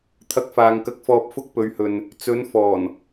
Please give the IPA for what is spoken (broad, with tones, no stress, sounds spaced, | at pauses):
t̪ʰ ɐ˧ k̚ f aː˨ ŋ k ɐ˧ k̚ f ɔː˧ p̚ f ʊ˥ k̚ p ɵ˨˧ ɥ h ɵ˨ n | t͡s ɵ˨˧ n f ɔː˨˩ n